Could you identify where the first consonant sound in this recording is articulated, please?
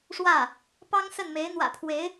retroflex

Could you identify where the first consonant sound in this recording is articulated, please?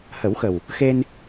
glottal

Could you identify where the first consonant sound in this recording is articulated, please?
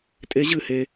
alveolar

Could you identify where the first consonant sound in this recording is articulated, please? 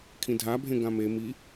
velar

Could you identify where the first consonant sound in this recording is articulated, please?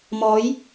labial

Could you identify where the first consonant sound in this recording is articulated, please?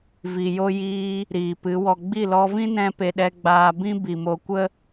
labial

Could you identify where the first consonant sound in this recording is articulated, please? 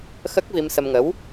velar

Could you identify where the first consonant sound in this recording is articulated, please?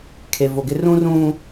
velar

